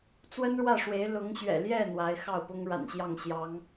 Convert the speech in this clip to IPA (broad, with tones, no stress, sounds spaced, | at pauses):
t͡s w ə˥ n ɻ w ä˥˩ ʂ w e˧˥ ɪ̯ l ʊ˧˥ ŋ ɕ ɥ ɛ̰˨˩ l j ɛ˥˩ n̪ w a˧˥ ɪ̯ x ɑ˥˩ ʊ̯ p ʊ˥ ŋ ɻ a̰˨˩ n ɕ j ɑ˥˩ ŋ ɕ j ɑ˧˥ ŋ